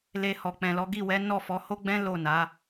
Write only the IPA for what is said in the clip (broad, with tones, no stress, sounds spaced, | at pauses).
l e˧ h ɔ˨ k͡p ɛ̃˨ l ɔ˨˦ ɡ i˦˨ w ɛ˨˦ n ɔ˦˨ f ɔ˨˦ h o˦ ɡ͡b ɛ̃˦ l o˦˨ n a˨˦